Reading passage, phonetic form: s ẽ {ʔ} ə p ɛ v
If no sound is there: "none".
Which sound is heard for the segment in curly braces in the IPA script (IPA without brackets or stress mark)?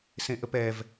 ʔ